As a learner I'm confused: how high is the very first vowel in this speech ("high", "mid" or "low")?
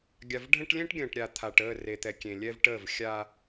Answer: low